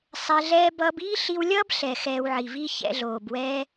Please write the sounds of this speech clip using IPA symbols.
sˤ ɛ˧ ɮ ɛː˦ b ʌː˧ b iː˦ ɬ i˧ w lʲ ʌː˦ b ɬ ɛ˨ x ɛː˧ w ʕ i˨ v i˦ ç ɛ̰˧ ɮ oː˨ b w ɛː˦

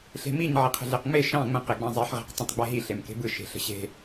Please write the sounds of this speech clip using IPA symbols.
ɬ e̤ m i ɲ ʕ i qʰ ə̤ ɮ e q ŋ͡m e ʃ ɑ̃ ŋ͡m ə̃ q e ɡ͡b ɑ̃ zˤ e ħ ʁ e̤ q tˤ ə̃ tˤ ɡ͡b e ɦ i ɬ e m k e̤ b ɯ ʃ e̤ ɬ ə̤ ɕ e̤

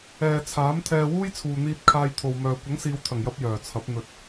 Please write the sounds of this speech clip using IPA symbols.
ɛː˨ t͡sʰ aː˨˥ m t̪ʰ ɛː˧ w uː˥ j t͡sʰ uː˨ n̪ iː˧ t̚ kʰ aː˧ j t̪ʰ o˨ w m œː˨ kʷ ɐ˨˥ ŋ s iː˨˧ w t̪ʰ ɐ˨˩ ŋ j ɐ˧ p̚ j œː˨˩ t͡sʰ ɐ˨˥ p̚ n̪ ɵ˨ t̚

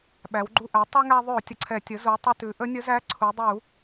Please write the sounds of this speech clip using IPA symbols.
ɓ æ˩˧ w ɡ͡ǃ u˧ ʔ æ˩˥ tˤ u˧ ŋ æ˧ ðˤ ʉ˧˩˧ ʊ̯ tʲ ə˩˧ ǀʰ ɛ˧˩˧ tʲ ə˩˥ z u˩˧ tˤ ə˧ t ʉ˩˧ ʔ ə˧˥ nʲ ə˧˥ z æ˧˥ ǀʰ u˩˧ dˤ u˧˩˧

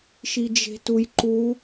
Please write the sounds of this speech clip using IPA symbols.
ʃ i d͡ʒ e̤ t u j ǃ u

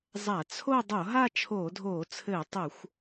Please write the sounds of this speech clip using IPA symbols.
zˤ a˧˩˧ t͡sʰ o˥˧ dˤ o˧˩˧ ɦ a˥˧ t͡ʃʰ oː˧˩˧ dʱ oː˧˩˧ t͡sʰ ɘː˧˩˧ tˤ o˧˩˧ xʷ

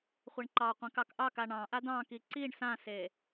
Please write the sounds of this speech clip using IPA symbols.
χʷ e ɳ ǃ ɑ qʷ ẽ k ɑ k ʔ ɑ k a ɳ ɑ̃ ʔ a d ɑ̃ k i ǀ i ɳ s ã s e

